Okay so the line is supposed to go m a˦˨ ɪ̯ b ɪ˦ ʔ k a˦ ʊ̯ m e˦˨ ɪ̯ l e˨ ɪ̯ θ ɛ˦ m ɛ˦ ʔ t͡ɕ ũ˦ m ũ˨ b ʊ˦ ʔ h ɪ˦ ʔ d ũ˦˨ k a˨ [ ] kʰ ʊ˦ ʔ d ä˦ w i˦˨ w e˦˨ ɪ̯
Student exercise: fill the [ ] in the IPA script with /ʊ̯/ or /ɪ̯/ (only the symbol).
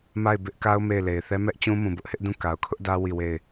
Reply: ʊ̯